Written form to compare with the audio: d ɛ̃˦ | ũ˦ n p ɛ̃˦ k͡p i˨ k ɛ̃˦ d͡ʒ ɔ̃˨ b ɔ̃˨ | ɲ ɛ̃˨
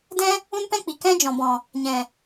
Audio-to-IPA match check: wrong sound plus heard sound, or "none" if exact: none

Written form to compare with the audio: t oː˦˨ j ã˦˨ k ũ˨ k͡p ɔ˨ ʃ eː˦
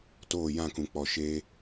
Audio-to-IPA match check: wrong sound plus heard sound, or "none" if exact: none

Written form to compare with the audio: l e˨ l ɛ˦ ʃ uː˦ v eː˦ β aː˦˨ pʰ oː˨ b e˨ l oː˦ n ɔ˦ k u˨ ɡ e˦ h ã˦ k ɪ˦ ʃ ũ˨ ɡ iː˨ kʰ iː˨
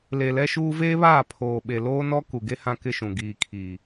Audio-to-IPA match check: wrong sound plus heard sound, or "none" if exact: b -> ɓ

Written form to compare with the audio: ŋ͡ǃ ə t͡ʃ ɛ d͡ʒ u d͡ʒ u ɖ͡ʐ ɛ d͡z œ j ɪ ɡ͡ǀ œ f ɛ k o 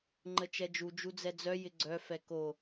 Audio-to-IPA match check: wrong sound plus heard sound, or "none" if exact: ɖ͡ʐ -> d͡z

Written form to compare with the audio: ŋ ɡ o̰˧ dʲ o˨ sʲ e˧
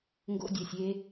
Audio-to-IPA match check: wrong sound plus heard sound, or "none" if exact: none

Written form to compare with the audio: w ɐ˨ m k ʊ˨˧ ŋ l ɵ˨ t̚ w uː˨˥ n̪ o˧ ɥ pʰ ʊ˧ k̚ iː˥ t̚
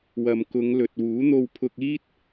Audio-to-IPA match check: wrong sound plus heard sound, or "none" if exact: ɥ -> w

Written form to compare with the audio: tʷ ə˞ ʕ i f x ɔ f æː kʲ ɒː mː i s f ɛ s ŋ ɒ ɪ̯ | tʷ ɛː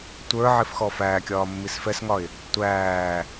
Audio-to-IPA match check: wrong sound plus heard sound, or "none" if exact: ɛː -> æː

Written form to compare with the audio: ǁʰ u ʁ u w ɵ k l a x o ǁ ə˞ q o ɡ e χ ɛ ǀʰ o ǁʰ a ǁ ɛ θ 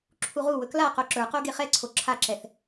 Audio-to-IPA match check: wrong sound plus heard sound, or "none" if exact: x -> q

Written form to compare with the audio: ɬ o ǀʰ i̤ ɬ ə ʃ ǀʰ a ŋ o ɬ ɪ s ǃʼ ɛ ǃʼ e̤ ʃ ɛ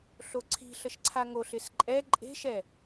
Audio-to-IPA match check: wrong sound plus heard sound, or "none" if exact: none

